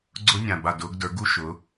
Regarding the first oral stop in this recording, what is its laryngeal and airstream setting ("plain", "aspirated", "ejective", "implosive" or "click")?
click